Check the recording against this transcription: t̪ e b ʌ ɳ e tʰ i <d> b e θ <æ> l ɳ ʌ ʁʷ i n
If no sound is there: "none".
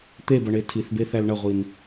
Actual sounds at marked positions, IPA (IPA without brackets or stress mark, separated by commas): θ, æ